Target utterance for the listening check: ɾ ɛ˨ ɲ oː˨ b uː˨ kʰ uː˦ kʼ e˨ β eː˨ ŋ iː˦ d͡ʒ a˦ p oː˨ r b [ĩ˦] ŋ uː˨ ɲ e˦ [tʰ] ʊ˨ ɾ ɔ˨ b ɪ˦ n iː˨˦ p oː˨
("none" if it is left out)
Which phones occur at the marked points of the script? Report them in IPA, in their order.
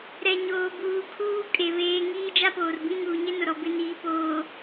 ĩ˦, n

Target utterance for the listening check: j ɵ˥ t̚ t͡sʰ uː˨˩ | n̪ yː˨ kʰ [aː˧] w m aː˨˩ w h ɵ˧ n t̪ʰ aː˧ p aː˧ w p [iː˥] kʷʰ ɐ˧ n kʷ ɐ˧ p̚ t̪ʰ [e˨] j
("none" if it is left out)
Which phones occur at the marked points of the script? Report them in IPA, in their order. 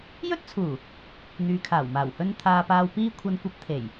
aː˨˩, iː˥, e˨˩

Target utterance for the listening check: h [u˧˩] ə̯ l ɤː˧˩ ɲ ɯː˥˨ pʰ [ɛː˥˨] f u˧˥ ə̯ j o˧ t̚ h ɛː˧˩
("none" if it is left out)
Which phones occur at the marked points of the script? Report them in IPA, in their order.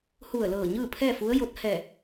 u˧˩, ɛː˥˨

